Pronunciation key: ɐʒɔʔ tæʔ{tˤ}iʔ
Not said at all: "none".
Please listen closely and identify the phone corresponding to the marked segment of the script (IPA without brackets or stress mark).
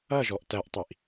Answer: tˤ